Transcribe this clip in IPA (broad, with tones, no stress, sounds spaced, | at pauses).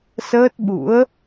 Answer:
s əː˦˥ t̚ ɓ ṵ˧˥ ə̯